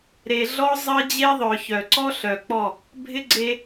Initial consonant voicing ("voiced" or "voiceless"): voiced